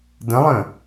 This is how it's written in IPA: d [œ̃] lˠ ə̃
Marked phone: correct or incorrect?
incorrect